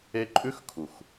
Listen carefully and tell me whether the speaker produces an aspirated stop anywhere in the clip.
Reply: yes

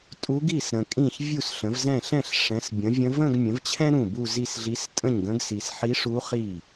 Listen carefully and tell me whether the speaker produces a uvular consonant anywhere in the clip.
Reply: yes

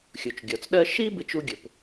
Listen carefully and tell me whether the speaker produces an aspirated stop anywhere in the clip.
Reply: no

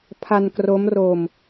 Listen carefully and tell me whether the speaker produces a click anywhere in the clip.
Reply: no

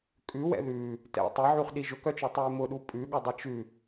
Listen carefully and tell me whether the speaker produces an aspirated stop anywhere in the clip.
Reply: no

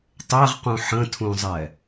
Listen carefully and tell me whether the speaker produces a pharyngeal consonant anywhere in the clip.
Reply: yes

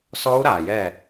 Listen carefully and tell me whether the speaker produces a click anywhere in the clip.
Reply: no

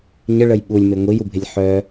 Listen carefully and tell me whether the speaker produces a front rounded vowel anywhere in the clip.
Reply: yes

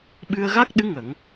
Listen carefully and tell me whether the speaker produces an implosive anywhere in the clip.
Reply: yes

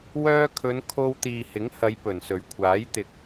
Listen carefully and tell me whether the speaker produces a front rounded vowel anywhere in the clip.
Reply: yes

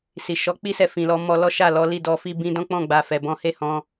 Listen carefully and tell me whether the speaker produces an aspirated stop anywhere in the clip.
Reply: no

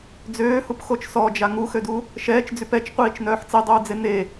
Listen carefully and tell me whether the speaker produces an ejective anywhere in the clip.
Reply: no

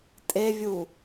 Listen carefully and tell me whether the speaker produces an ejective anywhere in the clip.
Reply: yes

